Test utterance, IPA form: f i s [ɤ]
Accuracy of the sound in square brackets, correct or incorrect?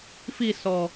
incorrect